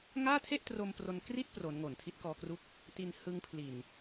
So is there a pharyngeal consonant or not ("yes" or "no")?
no